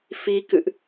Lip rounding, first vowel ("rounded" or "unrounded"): unrounded